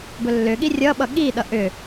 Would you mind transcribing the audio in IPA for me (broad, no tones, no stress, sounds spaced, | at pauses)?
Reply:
b ɵ lː ʏ ɠ i rʲ ʌ ɓ ʌ ɠ i ɗ ʌ ʔ ʏ